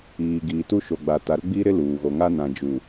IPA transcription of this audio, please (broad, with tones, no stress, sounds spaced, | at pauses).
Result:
iː˨ ɡ iː˨ t u˦ ʃ o˨ ɡ͡b a˨ t a˨ ɾ ʊ˦ ɡ͡b iː˦ ɾ ɪ˦ l uː˨ ɣ o˨ ŋ a˦ n ã˨ d͡ʒ u˨